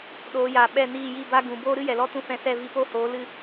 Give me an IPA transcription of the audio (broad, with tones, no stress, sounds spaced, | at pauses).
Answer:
ɗ oː˨˦ j aː˨ ɓ ɛ˦˨ n iː˦˨ j i˦˨ b a˦ ɡ ũ˨ b oː˦ ɾ ɨ˦ j ɛ˨ l ɔ˦ t ũ˦ f ɛ̃˧ s ɛ˦˨ v i˧ p o˦˨ h oː˨˦ l ɨ˦˨